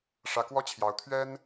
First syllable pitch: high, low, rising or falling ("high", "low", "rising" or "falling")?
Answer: rising